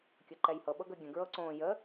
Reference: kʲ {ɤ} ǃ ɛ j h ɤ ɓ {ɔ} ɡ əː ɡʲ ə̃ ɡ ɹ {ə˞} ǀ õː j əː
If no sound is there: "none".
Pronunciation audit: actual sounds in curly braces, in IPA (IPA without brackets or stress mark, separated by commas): ɤ, ɤ, ɤ